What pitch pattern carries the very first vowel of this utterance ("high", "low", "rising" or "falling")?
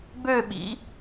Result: falling